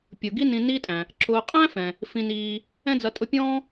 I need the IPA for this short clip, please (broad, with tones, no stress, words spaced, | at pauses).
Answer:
pʲʊ˩ ɡi˦nĩ˨niː˦tʼæ̃˩ | ǁʊː˨qʼæ̃˥ fɛ̃˩ | fĩ˨n iː˨ | ɛ̃˦d͡zʌ˨ tʼʊ˦pʲɔ̃ː˥